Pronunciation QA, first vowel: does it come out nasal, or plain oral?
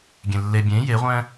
nasal